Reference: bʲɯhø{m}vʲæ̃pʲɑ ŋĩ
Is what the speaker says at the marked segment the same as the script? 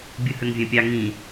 no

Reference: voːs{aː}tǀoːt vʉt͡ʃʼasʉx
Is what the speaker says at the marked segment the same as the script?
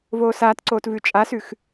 yes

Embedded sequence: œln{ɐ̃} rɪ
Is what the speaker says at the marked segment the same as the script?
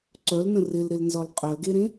no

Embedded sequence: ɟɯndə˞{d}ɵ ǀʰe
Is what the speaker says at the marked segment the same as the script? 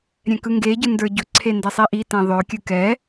no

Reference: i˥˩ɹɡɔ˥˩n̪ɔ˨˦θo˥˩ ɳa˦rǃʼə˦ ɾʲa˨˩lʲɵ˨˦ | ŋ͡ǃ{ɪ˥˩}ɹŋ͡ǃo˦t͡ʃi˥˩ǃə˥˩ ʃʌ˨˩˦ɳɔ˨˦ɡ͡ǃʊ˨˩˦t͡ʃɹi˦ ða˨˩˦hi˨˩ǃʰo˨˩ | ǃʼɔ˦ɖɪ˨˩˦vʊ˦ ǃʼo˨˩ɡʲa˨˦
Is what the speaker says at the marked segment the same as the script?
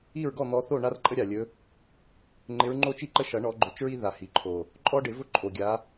no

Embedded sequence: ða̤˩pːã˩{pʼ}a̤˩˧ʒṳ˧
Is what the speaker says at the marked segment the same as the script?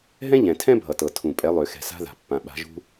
no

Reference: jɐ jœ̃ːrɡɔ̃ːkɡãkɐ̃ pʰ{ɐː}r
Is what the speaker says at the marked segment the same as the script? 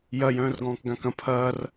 yes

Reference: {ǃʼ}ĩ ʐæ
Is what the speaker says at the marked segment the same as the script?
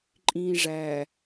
yes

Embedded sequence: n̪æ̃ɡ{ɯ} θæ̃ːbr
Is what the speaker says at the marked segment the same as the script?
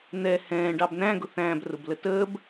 no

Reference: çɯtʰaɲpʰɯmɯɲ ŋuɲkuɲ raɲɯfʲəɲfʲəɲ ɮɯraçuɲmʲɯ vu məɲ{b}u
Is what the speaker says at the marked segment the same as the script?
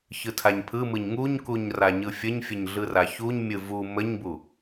yes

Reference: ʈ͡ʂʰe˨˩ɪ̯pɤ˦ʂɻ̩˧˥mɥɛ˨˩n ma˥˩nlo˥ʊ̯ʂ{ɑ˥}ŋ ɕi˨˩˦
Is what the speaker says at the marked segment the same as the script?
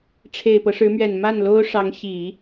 no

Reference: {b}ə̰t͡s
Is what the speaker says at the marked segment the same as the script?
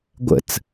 no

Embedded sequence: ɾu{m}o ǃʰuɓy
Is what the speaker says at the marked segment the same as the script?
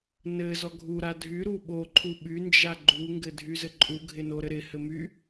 no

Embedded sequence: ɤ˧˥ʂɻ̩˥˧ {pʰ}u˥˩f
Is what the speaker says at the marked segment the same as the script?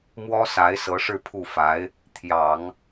yes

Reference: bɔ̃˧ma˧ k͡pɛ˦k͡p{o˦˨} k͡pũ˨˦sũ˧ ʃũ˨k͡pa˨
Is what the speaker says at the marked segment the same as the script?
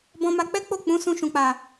yes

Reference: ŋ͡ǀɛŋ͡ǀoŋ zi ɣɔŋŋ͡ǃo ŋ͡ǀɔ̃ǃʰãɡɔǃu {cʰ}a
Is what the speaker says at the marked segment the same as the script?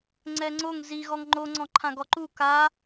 no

